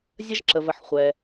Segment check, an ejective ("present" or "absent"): absent